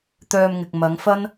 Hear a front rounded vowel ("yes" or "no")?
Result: yes